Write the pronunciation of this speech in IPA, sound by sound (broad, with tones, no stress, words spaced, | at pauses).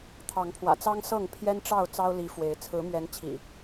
t̪ʰɑ˨˦ŋpʰwä̰˨˩t͡sɑ˦ŋ sɤ˥˨ŋ pʰjɛ˦nʈ͡ʂɑ˥˨ʊ̯ t͡sɑ˦ʊ̯li˨˦fwe˨˦ɪ̯ t͡sʰɹ̩˨˦mɥɛ˨˦n t͡ɕʰḭ˨˩